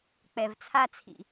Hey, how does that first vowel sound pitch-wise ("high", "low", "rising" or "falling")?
low